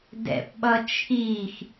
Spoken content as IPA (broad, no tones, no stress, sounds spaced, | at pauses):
d ɛ̰ p ɓ ʌ t͡ʃʰ iː x